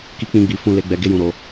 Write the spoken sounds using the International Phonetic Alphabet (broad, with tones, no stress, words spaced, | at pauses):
ki˧k͡pĩ˧ɡ͡bi˨ fũ˧le˧ ɡ͡bɛ˧ɡe˦jũ˧ɾo˧